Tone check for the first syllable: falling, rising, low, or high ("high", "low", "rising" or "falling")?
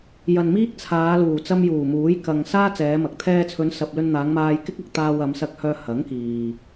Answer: low